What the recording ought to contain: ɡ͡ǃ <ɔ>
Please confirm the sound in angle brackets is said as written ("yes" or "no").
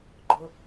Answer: no